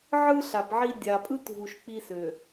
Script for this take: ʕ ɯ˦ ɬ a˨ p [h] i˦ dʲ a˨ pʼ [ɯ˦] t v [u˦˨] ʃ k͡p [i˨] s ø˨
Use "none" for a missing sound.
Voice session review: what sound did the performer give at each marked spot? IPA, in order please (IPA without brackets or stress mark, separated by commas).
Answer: ʕ, ɯ˦, u˨, i˦